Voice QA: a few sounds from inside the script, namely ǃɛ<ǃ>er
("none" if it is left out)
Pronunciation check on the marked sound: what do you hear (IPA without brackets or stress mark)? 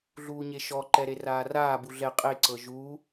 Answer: ɾ